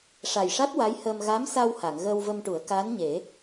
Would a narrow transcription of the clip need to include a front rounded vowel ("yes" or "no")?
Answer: no